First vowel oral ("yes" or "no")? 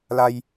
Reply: yes